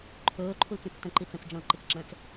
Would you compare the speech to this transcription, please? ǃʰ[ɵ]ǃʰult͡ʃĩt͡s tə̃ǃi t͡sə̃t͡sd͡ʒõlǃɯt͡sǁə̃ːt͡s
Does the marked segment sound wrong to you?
yes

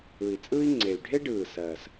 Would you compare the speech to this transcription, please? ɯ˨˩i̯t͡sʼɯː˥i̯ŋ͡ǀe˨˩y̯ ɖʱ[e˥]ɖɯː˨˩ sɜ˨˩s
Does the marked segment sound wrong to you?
no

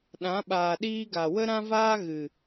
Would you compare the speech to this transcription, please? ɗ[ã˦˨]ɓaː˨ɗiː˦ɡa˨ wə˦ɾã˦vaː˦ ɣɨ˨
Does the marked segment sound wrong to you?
yes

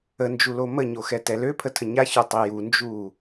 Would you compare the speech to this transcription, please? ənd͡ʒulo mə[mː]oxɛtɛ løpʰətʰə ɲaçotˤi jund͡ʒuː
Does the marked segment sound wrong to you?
yes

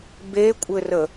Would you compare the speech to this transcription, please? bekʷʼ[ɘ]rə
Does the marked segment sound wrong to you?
no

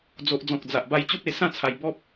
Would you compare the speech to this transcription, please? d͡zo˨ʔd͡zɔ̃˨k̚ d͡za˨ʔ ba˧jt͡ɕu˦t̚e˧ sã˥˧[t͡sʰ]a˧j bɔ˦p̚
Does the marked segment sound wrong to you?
no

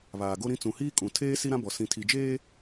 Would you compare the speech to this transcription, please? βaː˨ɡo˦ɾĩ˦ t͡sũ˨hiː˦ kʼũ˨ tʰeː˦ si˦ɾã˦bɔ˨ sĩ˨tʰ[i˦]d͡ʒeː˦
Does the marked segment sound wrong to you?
yes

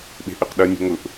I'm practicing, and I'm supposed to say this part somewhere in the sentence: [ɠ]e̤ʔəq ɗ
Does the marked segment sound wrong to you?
yes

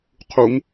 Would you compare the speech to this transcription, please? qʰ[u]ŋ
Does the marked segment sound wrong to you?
no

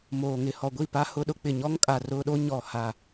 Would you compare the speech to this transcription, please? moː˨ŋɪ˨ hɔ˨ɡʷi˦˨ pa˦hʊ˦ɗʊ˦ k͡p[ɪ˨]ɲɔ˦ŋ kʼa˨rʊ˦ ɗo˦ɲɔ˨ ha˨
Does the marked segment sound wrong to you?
no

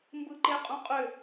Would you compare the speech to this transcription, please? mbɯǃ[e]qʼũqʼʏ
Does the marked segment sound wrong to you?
no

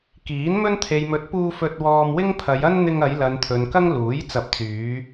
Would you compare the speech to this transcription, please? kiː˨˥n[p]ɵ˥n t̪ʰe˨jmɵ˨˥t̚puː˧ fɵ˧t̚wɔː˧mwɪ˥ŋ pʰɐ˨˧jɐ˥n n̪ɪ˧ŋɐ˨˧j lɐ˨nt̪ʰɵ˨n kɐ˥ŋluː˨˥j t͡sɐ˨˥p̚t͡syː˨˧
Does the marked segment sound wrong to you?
yes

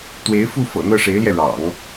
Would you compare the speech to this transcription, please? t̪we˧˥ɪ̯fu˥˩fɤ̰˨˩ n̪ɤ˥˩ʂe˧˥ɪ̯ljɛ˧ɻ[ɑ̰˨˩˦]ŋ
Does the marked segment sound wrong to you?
no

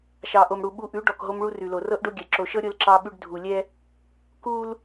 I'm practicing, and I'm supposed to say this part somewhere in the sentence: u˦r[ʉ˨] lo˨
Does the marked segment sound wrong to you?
no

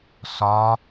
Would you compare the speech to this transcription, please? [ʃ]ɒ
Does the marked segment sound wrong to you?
yes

